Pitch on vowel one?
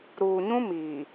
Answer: low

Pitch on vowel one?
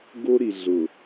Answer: high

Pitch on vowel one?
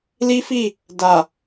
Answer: high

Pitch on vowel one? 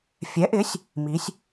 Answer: rising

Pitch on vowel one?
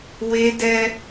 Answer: high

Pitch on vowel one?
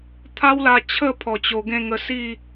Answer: high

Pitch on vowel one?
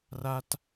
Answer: high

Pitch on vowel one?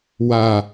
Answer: low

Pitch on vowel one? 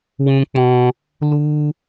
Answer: high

